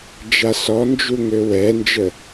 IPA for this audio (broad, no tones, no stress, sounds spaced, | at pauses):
d͡ʒ a s ɔ n d͡ʒ u ŋ ø w ɛ n d͡ʒ ə